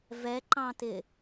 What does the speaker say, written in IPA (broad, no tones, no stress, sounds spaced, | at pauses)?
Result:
v ɛ ǃ ɑ̃ t ɪ